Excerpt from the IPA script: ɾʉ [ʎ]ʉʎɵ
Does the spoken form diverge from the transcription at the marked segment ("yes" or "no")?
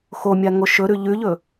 no